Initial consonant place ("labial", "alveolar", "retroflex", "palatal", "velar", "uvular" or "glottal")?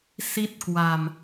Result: alveolar